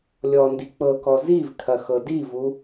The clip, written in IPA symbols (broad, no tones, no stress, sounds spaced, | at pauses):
lʲ ɔ n d i k͡p ɤ k ɔ z i v kʰ ɐ x ɤ d i v u